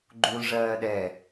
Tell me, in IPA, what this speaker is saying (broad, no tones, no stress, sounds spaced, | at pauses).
ɡ͡ǃ u l ʐ ɜː ɗ ɛ